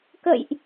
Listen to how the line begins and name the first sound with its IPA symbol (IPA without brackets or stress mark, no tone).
k